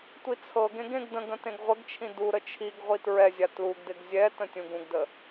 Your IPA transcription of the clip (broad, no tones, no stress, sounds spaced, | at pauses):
tʷ i t͡sʰ ɤ ɡ ẽ ɡ ẽ ɡ d ə̃ ɡ ə̃ t ẽ ɡ ʁʷ ə ɡ t͡ʃʰ ĩ d u ɾ ə t͡ʃʰ i ɡ ʁʷ i t ɹ ɛ zʲ a t l u ɡ d ɪ ɡ zʲ ɛ t ə̃ tʲ ũ ɡ ũ ɡ d ə